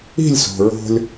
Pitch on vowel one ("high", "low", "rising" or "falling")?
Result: falling